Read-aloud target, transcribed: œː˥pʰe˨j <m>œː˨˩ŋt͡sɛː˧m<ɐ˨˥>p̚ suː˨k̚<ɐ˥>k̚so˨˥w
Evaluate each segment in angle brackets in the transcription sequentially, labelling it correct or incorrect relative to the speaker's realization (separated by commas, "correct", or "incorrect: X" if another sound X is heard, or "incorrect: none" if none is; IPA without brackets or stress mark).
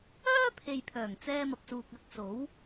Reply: incorrect: pʰ, incorrect: ɐ˨, incorrect: ɐ˧